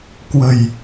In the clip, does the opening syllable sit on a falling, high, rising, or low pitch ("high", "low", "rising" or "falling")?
low